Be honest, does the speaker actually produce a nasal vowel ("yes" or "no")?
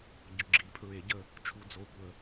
no